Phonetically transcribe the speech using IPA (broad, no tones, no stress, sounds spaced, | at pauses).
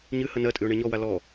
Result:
ɲ ɨ h ə n ɜ tʼ ɨ ʊ̯ ɳ e ɲ ɔ w a l ɔ